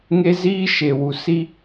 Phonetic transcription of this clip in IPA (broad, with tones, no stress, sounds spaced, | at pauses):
ŋ e˦ z iː˦ ʃ e˨ w u˨ s i˦